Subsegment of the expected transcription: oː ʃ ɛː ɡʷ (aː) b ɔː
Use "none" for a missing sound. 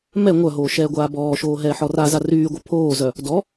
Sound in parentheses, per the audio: aː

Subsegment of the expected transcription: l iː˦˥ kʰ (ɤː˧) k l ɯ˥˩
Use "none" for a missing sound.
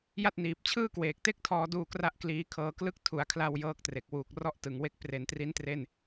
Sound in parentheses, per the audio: ɤː˧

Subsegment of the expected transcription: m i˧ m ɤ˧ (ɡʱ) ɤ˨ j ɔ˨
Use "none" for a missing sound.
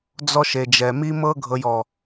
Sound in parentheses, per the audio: ɡʱ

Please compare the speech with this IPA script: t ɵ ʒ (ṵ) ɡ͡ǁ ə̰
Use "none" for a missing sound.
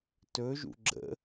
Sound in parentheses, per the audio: ṵ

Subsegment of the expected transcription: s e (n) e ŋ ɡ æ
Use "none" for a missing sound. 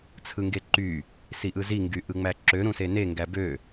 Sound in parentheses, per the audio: n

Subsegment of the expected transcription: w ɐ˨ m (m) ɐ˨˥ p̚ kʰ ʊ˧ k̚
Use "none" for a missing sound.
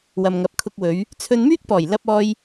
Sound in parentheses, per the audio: ŋ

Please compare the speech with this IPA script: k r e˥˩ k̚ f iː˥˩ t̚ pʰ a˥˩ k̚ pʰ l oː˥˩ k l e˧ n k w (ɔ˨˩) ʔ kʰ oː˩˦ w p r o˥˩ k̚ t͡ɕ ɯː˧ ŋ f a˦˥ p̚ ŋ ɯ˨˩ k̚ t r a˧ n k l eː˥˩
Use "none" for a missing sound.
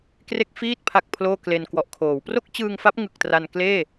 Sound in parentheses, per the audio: ɔ˨˩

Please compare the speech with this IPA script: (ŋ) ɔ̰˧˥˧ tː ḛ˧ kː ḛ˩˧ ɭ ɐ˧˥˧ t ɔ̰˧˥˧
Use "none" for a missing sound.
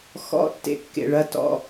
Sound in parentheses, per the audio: x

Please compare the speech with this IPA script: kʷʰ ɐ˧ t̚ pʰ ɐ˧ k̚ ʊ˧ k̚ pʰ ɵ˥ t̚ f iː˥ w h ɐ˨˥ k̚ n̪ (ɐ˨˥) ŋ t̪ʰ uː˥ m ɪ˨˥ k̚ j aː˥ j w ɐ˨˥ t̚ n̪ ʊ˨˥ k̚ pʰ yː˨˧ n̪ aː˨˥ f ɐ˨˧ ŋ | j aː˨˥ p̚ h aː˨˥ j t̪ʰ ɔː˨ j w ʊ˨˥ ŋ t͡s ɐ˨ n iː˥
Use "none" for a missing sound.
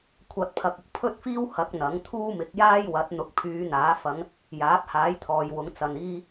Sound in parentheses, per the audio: ɐ˨˥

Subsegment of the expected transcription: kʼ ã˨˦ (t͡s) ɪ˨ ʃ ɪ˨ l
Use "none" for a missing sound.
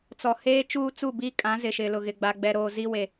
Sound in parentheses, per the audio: z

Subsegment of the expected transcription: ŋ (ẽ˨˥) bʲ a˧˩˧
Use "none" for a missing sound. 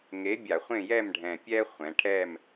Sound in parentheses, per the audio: e˨˥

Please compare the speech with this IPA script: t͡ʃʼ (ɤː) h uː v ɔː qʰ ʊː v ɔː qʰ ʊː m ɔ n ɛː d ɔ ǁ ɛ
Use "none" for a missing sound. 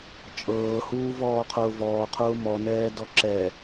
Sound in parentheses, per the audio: ɤː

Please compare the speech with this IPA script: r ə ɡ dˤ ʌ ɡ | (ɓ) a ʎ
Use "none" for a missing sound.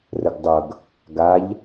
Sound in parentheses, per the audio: ɡ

